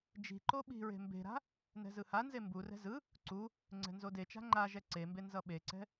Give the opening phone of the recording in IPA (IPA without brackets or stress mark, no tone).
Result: d͡ʒ